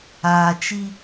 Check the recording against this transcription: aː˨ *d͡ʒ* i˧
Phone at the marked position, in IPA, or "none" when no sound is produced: t͡ʃ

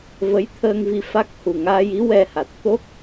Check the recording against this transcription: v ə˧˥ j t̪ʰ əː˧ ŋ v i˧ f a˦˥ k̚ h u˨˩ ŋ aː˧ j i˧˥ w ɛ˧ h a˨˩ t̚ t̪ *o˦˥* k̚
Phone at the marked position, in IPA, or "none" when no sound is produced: o˦˥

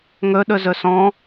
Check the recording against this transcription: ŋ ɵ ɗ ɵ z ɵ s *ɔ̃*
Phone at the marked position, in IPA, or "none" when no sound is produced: ɔ̃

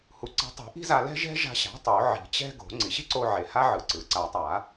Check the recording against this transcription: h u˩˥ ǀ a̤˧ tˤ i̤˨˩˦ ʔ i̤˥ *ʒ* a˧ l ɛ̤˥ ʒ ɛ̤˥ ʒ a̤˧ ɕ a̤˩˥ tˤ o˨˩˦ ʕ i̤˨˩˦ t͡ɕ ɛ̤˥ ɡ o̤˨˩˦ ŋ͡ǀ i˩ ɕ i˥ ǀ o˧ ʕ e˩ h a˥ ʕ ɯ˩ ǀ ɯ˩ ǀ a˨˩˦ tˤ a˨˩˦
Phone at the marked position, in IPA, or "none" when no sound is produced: z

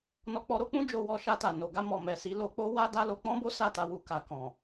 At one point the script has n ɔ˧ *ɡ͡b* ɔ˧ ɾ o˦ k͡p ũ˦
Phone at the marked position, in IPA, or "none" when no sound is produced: k͡p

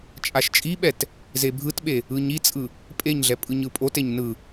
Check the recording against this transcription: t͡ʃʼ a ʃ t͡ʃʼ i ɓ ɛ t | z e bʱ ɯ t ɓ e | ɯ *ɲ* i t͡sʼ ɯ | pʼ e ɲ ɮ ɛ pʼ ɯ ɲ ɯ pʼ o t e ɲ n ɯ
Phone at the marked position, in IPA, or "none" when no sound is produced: ɲ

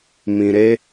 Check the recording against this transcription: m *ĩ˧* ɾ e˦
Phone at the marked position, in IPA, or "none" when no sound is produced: ĩ˧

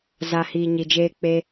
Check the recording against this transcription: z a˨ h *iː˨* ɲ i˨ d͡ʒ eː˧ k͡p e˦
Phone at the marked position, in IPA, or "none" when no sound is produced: iː˨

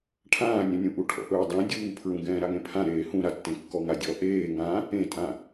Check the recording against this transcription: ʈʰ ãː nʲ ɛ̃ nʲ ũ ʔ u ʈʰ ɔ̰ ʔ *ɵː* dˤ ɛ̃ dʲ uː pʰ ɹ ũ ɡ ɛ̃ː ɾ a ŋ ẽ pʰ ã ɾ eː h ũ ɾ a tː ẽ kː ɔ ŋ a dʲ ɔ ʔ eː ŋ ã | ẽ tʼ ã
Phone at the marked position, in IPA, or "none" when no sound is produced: ɵː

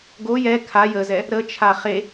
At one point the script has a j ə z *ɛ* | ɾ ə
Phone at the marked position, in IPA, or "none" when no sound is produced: ɛ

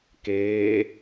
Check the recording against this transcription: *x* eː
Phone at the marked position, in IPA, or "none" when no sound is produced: k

